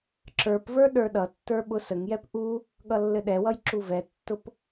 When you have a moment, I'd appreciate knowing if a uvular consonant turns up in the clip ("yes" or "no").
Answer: no